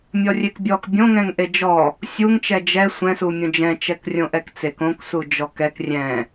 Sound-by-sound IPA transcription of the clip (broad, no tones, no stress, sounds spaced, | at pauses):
mʲ ɔ rʲ e k bʲ ɔ k bʲ õ ŋ ɛ̃ ŋ ʔ e d͡ʒ ɔ | sʲ u ŋ t͡ʃ ɛ d͡ʒ ɛ sʷ ɛ̃ s u mʲ õ d͡ʒ ɛ̃ t͡ʃ ɛ k rʲ õ ʔ ɛ k t͡s e k õ k s u d͡ʒ ɔ k ɛ k rʲ ɛ̃